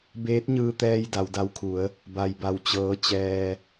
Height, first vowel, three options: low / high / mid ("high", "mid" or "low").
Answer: mid